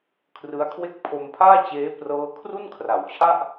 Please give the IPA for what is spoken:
kʰ r ɯ˦˥ a̯ kʰ w e˥˩ k̚ pʰ o˧ m pʰ aː˥˩ t͡ɕ eː˦˥ p r ɤː˦˥ kʰ r u˥˩ n kʰ r a˩˦ w t͡ɕʰ a˥˩ ʔ

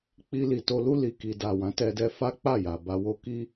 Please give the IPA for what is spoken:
k͡p i˧ l i˨ t o˧ l u˧ l i˨ k i˨ d a˨ w ã˨˦ t ɛ˧ d ɛ˧ f a˦ k͡p a˦˨ j a˨ b a˧ w o˦ k i˦

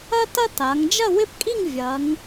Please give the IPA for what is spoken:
ɐ˥ t ɐ˥ t a˩˧ ŋ d͡ʒ ɐ˥˧ w ɪ˥˧ p kʼ i˥˧ ŋ vʲ ɐ˩˧ ŋ

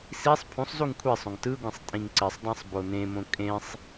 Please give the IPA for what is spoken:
s i sˤ pʰ ũ sˤ z u ŋ kʷʰ i sˤ õ ŋ t ɯ ɡʷ ĩ sˤ tʼ ĩ ŋ ǀ i sˤ dˤ ẽ sˤ b o n ẽ m õ kʼ ẽ sˤ

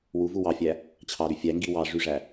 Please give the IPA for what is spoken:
w u v u w ɑ fʲ æ | t͡ɕʰ ɑ ɾ y fʲ æ ŋ ɡ i w ɑ ʐ y ʐ æ

